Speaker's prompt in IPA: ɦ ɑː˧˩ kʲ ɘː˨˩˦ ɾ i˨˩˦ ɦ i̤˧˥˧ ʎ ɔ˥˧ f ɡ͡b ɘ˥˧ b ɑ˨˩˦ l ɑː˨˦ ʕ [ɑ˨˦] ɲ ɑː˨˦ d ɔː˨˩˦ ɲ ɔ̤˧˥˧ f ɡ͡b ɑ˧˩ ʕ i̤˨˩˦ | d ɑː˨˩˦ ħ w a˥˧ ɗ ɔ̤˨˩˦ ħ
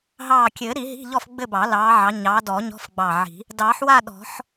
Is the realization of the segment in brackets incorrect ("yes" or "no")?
no